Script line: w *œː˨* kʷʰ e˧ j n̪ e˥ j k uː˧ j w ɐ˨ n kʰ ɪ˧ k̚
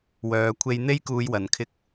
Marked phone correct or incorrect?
correct